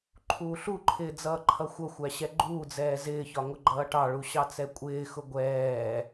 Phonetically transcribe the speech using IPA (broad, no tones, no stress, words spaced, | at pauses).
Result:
ǃʰuːɬuǃʰɪː d͡zʌːǃʰʌxʷʌxʷæ ɕɛɡ͡ǃuːd͡zɛː zɪːçɒ ŋʊɡ͡ǃʌːʈɑɭu ɕɑt͡sɛkʷʼɪːxʊ ɡʷɛː